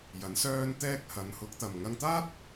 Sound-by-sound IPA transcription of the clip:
j ɐ˨˥ n s œː˥ n t̪ ɛː˥ k̚ h ɐ˨˧ n h ʊ˨˥ k̚ t̪ ɐ˨ m ŋ ɐ˧ ŋ t̪ aː˥ t̚

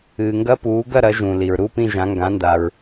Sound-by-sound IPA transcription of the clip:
ɨː˨ ŋ ɡ ɐ˦˥ p uː˨˦ ɡ ɐ˥˧ ɾ ɐ˨˦ ʒ ũ˨ l i˨ ɹ ɾ u˧˥˧ p ĩ˥˧ ʒ ã˨˦ ŋ ɡ ã˨˦ n d a˨ ɹ

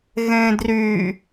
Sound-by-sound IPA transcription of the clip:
ɣ ẽ d r y

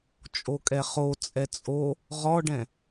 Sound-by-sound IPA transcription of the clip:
t͡ʃʼ o kʼ ɛ χ o t͡sʼ ɛ t͡sʼ o | ʁ ɔ ɖ ɛ̃

